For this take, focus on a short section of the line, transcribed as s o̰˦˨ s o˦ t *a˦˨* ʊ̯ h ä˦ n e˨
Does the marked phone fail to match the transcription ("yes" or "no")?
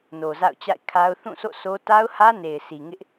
yes